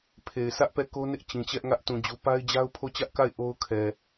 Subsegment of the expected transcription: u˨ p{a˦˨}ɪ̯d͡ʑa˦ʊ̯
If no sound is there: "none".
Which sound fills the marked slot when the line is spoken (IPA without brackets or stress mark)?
a˦